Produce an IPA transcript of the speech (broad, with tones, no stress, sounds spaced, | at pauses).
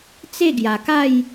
t͡s e˥˧ ɡ j a˨˩ k a˥˧ j